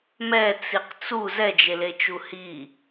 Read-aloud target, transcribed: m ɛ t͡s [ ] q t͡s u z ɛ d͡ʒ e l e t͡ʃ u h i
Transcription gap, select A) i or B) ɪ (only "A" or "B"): A